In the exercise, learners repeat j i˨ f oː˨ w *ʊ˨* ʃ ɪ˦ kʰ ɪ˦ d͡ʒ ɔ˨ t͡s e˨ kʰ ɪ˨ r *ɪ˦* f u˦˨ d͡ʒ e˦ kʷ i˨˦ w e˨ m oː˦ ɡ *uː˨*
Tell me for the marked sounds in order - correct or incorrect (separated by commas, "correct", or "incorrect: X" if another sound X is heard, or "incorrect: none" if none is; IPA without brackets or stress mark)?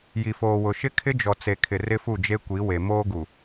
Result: correct, correct, incorrect: u˨